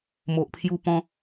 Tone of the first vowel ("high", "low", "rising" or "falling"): low